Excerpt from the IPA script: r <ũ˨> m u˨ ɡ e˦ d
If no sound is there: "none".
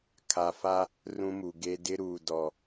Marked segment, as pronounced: ũ˦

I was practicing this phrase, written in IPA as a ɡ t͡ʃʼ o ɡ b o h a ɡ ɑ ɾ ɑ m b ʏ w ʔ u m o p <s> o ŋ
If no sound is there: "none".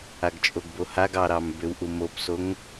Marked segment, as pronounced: s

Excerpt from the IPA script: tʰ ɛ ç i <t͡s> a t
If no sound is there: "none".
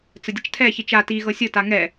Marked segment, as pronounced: t͡ʃ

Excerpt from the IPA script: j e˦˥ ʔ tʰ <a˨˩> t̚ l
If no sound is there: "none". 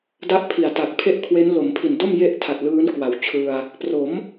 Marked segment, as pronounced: a˨˩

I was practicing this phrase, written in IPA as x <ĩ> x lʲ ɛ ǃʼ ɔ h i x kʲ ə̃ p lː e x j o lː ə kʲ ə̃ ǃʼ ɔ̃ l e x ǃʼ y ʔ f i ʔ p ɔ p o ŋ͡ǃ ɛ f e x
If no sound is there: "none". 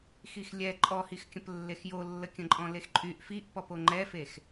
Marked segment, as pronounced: i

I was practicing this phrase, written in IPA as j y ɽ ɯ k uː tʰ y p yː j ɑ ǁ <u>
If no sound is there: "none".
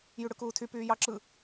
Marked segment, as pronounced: ɯ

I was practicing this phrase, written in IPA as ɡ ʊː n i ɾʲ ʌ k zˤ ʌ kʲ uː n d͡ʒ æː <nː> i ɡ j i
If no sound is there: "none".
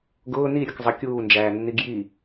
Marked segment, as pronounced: nː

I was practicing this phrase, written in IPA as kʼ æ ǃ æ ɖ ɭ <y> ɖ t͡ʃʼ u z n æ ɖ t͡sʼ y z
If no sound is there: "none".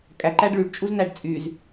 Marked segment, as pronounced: y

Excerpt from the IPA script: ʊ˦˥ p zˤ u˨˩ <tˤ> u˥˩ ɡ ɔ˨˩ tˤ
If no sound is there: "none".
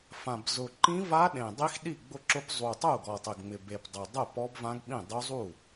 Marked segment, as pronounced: tˤ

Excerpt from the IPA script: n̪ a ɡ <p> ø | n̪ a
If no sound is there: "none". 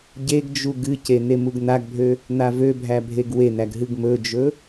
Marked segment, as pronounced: bʱ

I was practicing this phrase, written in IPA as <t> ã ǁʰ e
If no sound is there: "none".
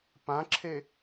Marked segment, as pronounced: p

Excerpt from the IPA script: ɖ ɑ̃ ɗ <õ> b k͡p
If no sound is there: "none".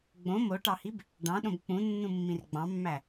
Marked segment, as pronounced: õ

